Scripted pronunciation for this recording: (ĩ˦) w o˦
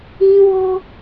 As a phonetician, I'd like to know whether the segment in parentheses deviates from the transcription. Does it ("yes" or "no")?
no